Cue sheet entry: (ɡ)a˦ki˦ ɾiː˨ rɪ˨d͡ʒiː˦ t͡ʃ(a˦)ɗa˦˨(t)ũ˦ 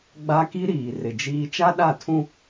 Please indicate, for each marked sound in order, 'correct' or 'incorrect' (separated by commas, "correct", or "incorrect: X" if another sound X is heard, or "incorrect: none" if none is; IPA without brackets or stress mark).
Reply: incorrect: ɡ͡b, correct, incorrect: tʰ